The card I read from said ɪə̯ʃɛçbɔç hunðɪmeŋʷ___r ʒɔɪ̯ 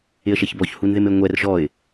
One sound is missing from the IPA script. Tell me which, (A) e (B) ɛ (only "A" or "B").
B